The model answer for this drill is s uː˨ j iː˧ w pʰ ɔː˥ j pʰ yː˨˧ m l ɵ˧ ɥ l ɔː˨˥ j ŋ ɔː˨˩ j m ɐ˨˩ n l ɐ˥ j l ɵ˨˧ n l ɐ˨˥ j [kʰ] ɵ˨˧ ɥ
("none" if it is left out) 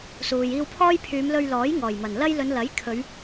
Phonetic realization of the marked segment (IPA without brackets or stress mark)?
kʰ